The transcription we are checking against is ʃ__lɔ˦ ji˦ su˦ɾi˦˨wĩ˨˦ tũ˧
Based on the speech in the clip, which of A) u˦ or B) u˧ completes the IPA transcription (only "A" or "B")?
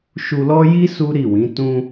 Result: B